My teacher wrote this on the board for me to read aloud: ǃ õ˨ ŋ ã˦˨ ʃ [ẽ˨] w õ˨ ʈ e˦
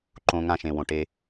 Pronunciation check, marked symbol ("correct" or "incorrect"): correct